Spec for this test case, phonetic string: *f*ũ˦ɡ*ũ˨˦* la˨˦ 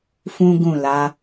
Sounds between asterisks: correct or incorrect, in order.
correct, incorrect

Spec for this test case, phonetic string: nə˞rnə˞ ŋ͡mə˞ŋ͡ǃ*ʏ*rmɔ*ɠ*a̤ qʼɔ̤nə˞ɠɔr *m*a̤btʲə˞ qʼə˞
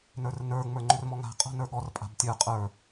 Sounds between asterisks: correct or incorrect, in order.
correct, incorrect, incorrect

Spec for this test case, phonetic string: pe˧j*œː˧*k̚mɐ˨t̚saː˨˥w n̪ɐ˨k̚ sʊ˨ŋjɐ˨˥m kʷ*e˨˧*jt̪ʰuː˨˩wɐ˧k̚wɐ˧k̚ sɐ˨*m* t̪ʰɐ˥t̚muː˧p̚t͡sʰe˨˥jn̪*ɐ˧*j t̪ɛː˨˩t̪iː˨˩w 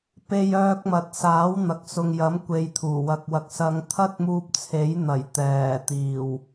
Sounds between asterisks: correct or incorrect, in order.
correct, incorrect, incorrect, incorrect

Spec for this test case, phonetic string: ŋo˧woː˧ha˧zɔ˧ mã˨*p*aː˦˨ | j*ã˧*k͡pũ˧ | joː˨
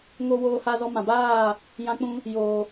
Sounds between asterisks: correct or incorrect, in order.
incorrect, correct

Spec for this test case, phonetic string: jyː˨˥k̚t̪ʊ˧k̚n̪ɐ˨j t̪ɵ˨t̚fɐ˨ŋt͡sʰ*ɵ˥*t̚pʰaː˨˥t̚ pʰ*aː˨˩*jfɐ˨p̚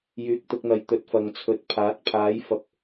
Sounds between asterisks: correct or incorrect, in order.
incorrect, incorrect

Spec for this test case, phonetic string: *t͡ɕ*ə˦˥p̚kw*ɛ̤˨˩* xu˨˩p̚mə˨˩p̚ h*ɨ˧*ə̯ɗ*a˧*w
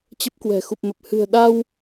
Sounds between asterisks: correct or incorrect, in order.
correct, correct, incorrect, correct

